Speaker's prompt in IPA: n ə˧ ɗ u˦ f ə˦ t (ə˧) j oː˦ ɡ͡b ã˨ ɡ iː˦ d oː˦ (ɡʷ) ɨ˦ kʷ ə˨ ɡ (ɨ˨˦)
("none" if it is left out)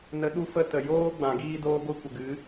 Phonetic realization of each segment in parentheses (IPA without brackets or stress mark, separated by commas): ə˨, ɡʷ, ɨ˨˦